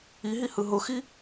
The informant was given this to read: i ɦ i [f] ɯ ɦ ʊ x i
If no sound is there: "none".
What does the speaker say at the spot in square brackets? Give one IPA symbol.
h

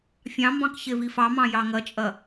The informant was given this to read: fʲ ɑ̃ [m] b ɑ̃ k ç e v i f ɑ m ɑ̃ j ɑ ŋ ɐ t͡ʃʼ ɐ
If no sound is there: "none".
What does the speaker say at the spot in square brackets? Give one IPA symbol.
m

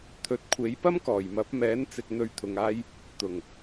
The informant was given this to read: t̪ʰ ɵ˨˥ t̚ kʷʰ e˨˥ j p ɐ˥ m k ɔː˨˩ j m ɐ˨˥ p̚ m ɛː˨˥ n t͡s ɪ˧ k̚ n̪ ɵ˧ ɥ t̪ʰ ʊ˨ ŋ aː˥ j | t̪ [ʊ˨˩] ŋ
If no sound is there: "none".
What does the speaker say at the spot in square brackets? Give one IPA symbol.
ʊ˨˩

